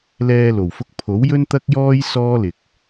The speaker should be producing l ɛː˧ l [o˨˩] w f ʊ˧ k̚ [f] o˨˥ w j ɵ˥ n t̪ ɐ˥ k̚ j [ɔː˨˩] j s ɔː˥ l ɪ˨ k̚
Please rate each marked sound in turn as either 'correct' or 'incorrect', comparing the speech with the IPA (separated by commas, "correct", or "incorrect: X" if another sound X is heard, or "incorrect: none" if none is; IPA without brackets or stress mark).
correct, incorrect: pʰ, incorrect: ɔː˥